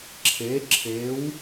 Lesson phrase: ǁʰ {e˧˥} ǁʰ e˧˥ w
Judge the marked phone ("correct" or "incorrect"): correct